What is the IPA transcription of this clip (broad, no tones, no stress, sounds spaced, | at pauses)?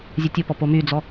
zʲ ɛ tʲ o p ɔ p o m y d͡z ɔ